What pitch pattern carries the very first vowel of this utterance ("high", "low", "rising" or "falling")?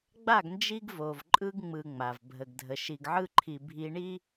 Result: falling